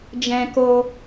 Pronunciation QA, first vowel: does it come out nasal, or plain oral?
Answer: nasal